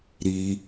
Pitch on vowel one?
low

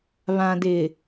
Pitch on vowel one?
low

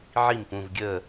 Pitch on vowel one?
falling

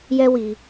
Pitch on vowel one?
high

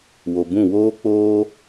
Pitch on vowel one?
low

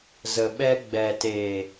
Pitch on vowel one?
low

